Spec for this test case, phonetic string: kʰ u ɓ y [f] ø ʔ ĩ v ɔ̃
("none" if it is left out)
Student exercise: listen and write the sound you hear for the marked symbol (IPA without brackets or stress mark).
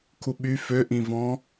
f